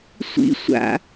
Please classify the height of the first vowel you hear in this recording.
high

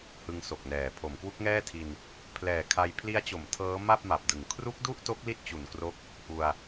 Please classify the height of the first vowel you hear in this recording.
high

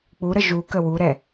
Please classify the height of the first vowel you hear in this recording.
high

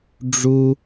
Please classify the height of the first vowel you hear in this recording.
high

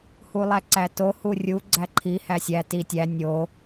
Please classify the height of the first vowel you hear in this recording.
high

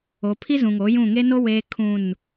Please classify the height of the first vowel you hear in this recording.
mid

